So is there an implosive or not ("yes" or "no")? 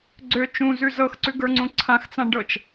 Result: no